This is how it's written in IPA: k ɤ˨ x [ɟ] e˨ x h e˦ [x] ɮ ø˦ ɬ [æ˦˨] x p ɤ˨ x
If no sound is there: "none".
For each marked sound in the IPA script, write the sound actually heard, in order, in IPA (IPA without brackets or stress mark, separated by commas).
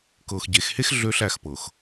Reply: ɟ, x, æ˦˨